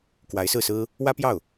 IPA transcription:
kwa˧˥ɪ̯sɹ̩˥˩sɹ̩˥ | wä˥pjɑ˥˩ʊ̯

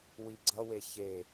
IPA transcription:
wiɡ͡ǀʌwe çe

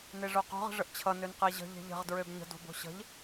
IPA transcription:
neʐoqo̤ʁ ə̤ʐəʔt͡ɕʰʌ nønqeʑə̤ ʎe̤ʎə̤ʁ dɹøbɲə̤ do̤bo̤ɕə̤ʎ

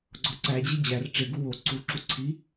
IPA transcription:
ɡ͡ǀɒǀæd͡ʑe d͡ʑær ʈ͡ʂeɡu wo ǀuǁu ǀʰi

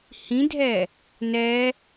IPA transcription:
hĩdʱɛ | nɛ

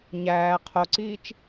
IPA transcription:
ɲæː qʰoǀiːt͡ʃ

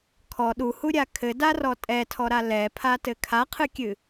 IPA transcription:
kʰɔ ɗuhuɾʲa kʰɘdarɔ tʼɛtʰɔɾa lɛpʰatɘ kʰaqʰɨkʲɨ

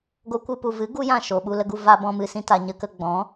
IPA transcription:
ɡo˦kʷɨ˦ pu˨vɨ˨˦ ɡu˦jã˦˨ ʃo˨ɓu˧lə˧ɡu˧ va˧bɔ̃˧mɨ˨ sĩ˦ta˧ ɲə˧kə˧ɡ͡bɔ̃˨˦

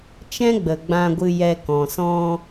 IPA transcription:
t͡ʃɛ̃˦ɡ͡bə˨ɡ͡bã˧ɡʷɨ˧ jɛ˧ kɔ̃˨sɔ̃˧

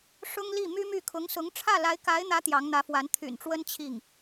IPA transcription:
ʂʊ˥ŋli˥˩ my˥my˥˩ kʰʊ˧˥ŋsʊ˧˥ŋ ʈ͡ʂʰä˥˩la˧˥ɪ̯ka˧˥ɪ̯n̪ä˧˥ t̪jɑ˧˥ŋn̪ä˧˥fwa˧˥n t̪ʰy̰˨˩nʈ͡ʂwə˥n t͡ɕʰi˥˩ŋ

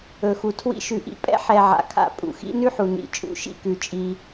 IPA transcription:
ɵ˨xu˨tʰwḭ˦ ʃʉ˨ʔḭ˨pʼɛ̰˦ħɛ˨ ʕa̰˨kʰa̰˦˨ pʼṵ˨xḭ˦nʉ˦ħu˨ nḭ˨ t͡ʃʼṵ˨˦ʃḭ˦˨kʉ˨ t͡ʃʼi˦

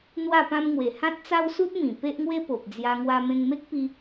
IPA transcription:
n̪wa˥˧pã˦mŋwe˨˩ hã˦t̚t͡sa˦wsu˦t̚ mĩ˨˩ pe˦ʔŋwe˦ po˨p̚d͡zja˧ ŋwa˧mẽ˧ŋme˦k̚pi˧

